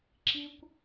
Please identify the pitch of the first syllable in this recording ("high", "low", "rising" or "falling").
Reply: high